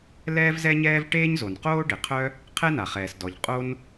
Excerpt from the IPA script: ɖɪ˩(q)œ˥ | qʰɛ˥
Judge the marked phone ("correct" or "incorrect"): incorrect